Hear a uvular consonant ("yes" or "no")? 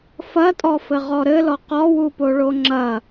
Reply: yes